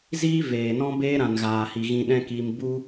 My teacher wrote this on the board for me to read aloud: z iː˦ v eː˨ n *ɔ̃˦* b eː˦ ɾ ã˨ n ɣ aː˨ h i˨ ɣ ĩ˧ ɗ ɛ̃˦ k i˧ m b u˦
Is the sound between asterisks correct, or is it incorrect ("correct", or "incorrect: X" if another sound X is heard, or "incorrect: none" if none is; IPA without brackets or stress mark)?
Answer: correct